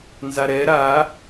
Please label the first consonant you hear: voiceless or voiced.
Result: voiced